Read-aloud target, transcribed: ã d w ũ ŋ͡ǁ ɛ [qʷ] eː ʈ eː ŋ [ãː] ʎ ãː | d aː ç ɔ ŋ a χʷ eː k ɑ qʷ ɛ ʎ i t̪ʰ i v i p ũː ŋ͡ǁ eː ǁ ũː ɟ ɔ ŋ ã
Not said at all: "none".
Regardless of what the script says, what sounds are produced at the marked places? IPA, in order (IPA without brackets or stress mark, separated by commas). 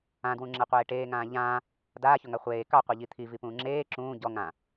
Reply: qʷ, ãː